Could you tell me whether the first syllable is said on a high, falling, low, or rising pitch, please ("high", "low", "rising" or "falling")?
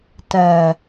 low